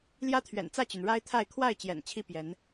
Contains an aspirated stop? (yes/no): yes